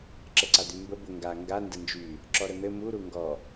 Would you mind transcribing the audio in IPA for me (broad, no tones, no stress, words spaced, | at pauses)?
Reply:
ǁəǀad̪ymbə bʊ ŋɡa ŋɡa ndənd͡ʒy | ǁɔɾən̪ɘ mu ɾuŋɡɔ